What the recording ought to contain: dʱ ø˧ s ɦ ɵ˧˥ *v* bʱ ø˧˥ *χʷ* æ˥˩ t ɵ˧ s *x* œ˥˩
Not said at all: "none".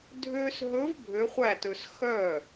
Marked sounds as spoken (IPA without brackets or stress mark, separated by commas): v, χʷ, x